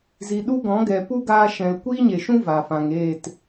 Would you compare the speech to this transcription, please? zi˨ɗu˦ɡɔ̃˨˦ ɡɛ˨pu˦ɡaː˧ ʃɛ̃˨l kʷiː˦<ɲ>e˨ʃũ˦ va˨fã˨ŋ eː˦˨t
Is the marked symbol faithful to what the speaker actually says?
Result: yes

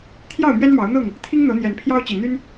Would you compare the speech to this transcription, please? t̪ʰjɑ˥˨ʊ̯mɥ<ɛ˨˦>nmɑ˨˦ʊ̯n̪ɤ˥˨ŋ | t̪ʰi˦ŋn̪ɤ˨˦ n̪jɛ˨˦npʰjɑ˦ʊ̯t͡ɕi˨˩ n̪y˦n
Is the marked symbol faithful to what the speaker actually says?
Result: no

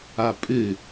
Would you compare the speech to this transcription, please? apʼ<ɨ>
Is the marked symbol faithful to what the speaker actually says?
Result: yes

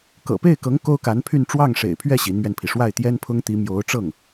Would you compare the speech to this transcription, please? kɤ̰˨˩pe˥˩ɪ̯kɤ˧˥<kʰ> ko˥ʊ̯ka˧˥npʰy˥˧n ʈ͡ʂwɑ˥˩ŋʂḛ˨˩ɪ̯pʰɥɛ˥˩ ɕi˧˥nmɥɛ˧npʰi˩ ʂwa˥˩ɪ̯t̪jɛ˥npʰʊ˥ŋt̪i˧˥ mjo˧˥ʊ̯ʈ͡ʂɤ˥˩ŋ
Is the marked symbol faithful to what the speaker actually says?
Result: no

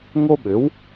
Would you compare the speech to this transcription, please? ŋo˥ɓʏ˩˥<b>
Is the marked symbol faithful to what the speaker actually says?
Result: no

